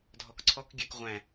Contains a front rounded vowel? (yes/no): yes